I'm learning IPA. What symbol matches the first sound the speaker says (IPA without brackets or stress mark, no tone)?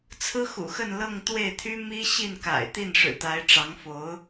t͡sʰ